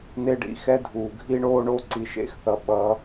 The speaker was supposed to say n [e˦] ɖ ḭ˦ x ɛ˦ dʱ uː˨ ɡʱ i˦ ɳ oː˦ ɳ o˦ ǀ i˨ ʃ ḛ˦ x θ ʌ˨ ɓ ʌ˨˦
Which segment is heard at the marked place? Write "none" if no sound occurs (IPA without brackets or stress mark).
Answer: e˦